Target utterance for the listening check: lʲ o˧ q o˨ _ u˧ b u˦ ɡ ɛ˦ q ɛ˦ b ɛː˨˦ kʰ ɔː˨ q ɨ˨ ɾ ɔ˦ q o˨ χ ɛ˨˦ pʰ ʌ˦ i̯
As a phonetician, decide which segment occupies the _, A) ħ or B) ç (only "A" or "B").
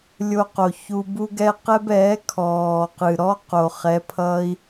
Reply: B